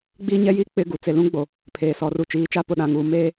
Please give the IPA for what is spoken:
ɡ͡biː˦ɲɛ˦jiː˦ k͡pɪ˦ ɡu˨ t͡se˨lũ˦ɡ͡bo˨ | pʰeː˨sɔ˨ ru˨t͡ʃiː˨˦t͡ʃa˦ pʊ˨ɗã˨ŋuː˨ meː˦

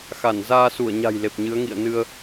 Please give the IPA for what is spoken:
xa˧˩nzaː˧su˧˩ə̯ɲa̤˨˩j le˨˩p̚ɲɨ˨˦ə̯ŋḭ˧˨ə̯nɨ˧ə̯

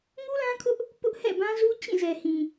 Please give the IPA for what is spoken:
ŋu˦lã˦kʰʊ˦ʔ | pʊ˦ʔhɛ̰˦˨bã˦zu˦ t͡ɕĩ˦˨ zɛ˨hĩ˨

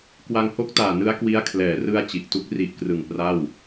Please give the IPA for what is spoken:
kwa˧ŋho˦˥k̚taː˨˩ nɯ˦˥a̯kwi˦˥a̯ kʰlɛː˩˦rɯ˧a̯ t͡ɕi˨˩ʔtu˦˥k̚ ri˨˩ʔkrɯ˨˩ŋ pra˥˩w

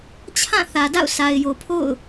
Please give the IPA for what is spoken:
t͡ɕʰã˦˨ θä˨ da̰˦˨ʊ̯ sa˨ɪ̯jo˨pʰo̰˦˨ʊ̯

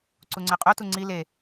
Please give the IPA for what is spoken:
ǀuŋ͡ǀɛqʼutu ŋ͡ǀi le

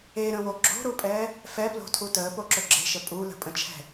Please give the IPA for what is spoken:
eɾə̃wo ɡ͡ǁo̤ɾupʼɛː | fɛplo̤tʰu təːpoǁɵ ɡ͡ǁe̤ʃə pʼulə̤pʼə̃t͡ʃʰɛ̤

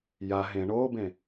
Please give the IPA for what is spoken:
ja ɦẽ ɳobẽ

